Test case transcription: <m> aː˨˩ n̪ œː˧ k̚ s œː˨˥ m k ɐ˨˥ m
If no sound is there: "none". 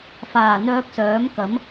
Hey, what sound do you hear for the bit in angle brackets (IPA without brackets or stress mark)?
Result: f